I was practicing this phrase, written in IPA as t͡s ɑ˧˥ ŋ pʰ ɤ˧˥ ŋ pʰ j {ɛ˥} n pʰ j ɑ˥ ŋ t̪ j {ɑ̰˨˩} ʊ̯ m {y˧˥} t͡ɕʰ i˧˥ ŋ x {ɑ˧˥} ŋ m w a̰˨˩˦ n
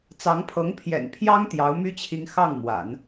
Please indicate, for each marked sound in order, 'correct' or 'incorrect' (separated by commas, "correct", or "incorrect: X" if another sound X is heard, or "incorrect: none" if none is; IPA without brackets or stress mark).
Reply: incorrect: ɛ̰˨˩, incorrect: ɑ˧˥, incorrect: y˥, incorrect: ɑ˥˩